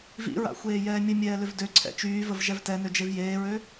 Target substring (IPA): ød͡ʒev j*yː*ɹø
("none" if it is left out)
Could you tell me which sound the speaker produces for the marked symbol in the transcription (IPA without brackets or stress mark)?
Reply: eː